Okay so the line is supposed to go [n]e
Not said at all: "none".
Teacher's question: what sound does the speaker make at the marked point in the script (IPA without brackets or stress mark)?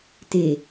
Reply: t